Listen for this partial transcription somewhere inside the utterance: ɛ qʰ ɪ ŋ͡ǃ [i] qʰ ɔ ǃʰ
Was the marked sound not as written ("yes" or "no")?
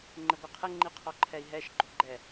no